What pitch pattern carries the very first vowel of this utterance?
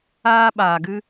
high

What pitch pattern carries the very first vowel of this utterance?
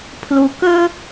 low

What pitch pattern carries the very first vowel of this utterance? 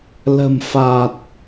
low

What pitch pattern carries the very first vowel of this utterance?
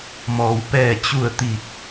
low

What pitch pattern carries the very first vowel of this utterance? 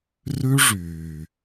high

